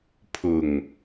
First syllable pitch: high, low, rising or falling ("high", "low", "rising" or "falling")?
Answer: low